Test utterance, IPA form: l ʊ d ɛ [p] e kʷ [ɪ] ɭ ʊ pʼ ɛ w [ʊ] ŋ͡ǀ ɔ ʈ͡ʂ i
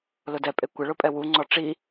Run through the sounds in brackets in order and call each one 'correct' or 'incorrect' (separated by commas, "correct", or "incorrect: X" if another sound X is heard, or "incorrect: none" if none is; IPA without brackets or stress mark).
incorrect: pʼ, correct, incorrect: u